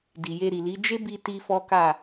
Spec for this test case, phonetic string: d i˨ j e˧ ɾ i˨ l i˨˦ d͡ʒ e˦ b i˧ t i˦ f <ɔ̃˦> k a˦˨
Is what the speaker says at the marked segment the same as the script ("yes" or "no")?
no